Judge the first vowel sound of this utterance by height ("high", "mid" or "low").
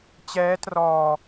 mid